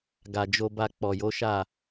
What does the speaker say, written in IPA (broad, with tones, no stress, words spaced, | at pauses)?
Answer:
ɡa˨d͡ʒo˧ ba˧k͡pɔ˨jo˨˦ʃa˦˨